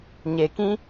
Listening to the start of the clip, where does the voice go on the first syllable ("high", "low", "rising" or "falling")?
low